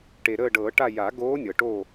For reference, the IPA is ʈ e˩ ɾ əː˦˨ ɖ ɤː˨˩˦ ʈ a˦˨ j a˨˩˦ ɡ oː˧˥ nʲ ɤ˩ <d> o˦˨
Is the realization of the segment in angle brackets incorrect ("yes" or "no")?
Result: yes